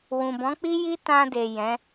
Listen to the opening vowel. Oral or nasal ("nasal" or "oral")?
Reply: nasal